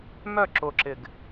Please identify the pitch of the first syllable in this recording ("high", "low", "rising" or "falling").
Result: falling